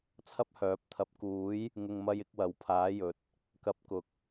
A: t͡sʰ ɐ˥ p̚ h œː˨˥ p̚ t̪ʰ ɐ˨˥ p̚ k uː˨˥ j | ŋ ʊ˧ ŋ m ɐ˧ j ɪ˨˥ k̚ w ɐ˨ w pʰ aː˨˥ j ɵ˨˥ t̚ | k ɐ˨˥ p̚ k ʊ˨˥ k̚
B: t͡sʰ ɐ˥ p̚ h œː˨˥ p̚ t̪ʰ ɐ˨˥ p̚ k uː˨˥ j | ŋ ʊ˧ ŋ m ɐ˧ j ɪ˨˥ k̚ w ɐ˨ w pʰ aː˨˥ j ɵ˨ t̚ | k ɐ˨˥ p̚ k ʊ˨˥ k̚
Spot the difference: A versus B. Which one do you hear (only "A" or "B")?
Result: B